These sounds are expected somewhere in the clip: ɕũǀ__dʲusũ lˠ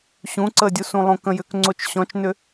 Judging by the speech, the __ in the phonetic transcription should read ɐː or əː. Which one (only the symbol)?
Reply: əː